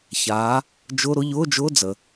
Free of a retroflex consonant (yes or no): yes